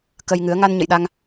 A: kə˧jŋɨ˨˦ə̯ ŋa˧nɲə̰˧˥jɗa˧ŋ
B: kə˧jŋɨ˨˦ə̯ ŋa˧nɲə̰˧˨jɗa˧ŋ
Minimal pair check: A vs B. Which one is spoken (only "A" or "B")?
B